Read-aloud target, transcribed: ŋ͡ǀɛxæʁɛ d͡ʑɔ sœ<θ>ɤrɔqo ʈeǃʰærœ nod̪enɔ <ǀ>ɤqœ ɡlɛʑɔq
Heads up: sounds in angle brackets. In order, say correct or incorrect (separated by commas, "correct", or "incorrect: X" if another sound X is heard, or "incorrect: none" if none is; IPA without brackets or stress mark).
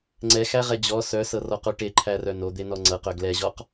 incorrect: s, incorrect: ŋ͡ǀ